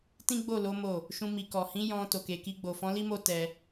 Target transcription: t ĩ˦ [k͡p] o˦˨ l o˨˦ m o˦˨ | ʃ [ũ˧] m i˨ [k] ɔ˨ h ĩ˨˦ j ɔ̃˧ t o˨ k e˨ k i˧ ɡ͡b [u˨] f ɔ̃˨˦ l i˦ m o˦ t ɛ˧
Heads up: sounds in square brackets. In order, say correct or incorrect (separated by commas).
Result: incorrect, correct, correct, incorrect